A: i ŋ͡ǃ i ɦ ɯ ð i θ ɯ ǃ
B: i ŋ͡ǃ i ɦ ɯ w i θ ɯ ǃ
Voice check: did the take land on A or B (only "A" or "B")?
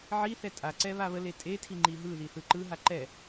A